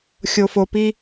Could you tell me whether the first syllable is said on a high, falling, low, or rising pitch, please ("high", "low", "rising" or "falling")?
low